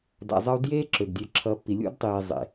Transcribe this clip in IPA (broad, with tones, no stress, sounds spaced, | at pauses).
d a̰˧ zˤ ʌ˦ u̯ d j eː˦ ǁ ø˨ ɡ dʲ ø˧ ǁʰ ʌː˧ pː i˨ lʲ ṵ˦ d tˤ iː˨ zˤ ḛ˨